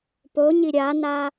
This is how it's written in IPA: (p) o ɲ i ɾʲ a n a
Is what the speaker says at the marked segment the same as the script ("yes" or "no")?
yes